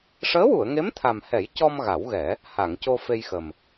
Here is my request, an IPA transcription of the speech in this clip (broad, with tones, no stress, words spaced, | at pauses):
ʂəː˧˥wu˨˩˨ə̯ŋe˧˥m t̪ʰa˨˩mhɛ˨˩˦j cɔ˧m ɣa˨˩˦wɣɛ˨˩˦ | ha˨˩˨ŋco˧fe˧jxə˨˩m